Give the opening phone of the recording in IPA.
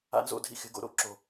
a̰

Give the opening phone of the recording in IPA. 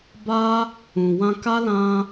b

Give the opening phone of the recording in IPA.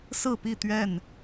s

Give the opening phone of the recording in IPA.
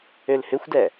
ø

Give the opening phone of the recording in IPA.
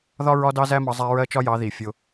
ð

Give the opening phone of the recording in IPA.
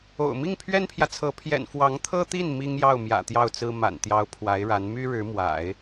o̰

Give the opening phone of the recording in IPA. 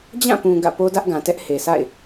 d͡ʑ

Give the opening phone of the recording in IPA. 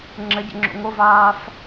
ŋ͡ǁ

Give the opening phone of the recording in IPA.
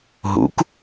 ɦ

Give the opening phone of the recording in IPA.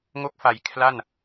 ŋ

